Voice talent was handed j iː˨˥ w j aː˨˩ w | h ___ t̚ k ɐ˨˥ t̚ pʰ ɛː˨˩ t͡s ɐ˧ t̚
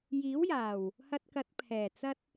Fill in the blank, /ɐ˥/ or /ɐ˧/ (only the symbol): ɐ˧